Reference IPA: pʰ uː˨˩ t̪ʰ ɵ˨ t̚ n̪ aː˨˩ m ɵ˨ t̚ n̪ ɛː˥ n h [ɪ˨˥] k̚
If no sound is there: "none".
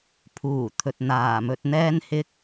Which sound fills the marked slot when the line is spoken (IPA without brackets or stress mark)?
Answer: ɪ˥